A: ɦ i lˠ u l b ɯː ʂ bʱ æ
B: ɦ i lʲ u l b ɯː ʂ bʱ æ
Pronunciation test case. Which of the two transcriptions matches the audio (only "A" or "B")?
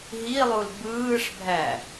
A